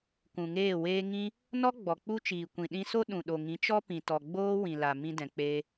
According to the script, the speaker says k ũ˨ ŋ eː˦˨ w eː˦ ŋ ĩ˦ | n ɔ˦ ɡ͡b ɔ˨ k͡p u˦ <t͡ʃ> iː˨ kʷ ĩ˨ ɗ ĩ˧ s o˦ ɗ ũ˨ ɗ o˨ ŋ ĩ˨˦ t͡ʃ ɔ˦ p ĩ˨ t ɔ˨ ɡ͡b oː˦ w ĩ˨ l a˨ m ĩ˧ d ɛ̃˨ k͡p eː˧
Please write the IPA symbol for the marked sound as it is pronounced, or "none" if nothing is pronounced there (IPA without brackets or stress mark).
t͡ʃ